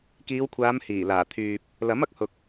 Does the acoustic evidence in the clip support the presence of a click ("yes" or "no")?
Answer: no